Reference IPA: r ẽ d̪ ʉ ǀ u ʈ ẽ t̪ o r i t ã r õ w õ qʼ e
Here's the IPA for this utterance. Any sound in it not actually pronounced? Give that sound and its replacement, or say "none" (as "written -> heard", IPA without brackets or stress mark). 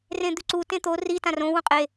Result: ʈ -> t